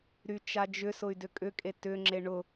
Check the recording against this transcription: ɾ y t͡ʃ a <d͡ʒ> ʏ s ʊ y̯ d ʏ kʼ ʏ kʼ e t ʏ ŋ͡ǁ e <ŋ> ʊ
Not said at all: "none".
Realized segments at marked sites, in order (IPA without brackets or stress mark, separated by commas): d͡ʒ, ɳ